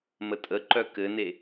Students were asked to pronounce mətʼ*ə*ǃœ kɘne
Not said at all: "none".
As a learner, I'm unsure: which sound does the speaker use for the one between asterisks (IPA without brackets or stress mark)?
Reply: ə